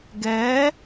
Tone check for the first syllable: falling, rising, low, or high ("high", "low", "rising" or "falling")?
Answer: rising